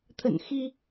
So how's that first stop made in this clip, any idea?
aspirated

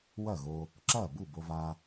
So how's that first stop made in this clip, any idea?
click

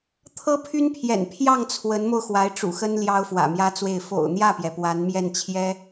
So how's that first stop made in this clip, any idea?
aspirated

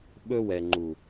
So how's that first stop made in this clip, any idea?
implosive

